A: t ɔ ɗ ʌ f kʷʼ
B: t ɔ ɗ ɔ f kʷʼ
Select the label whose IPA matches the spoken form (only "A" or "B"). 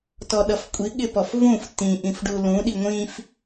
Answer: A